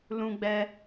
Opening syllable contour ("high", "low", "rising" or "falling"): high